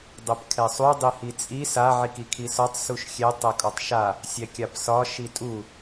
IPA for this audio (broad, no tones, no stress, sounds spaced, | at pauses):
dˤ ɛ p kʰ ɛ sˤ u dˤ i h i t͡sʼ i s a ʕ i k i kʰ i s ɒ tˤ s u ʃ xʲ ɛ tˤ ɛ kʼ ɒ tˤ ʃ a | sʲ ɛ kʲ a p s ɒ ʃ i tʼ u